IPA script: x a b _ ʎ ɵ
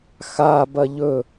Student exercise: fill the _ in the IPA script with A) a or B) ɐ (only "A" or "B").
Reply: B